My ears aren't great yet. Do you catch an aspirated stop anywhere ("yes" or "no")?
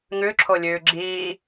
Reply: yes